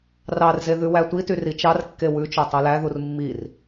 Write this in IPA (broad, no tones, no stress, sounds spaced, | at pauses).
r ɑ r z e ð ʉ w æ tʷ i t y r i t͡ʃ ɑ r kː e w ʉ t͡ʃ o tˤ o l æ ð u r mː i r